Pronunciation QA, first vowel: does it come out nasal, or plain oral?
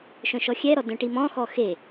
nasal